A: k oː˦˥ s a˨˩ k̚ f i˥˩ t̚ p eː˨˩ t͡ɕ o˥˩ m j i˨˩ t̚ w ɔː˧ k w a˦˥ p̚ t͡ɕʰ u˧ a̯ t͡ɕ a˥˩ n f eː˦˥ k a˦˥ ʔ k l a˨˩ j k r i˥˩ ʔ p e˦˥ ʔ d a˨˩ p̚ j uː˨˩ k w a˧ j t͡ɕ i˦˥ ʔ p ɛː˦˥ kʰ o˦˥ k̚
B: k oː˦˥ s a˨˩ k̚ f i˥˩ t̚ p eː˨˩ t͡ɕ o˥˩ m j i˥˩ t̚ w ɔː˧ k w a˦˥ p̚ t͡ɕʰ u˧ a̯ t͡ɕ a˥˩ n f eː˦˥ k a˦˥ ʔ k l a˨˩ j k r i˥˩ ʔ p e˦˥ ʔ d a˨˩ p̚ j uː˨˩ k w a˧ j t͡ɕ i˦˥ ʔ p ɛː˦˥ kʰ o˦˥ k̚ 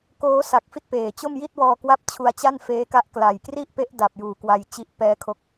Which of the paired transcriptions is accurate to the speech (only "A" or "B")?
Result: B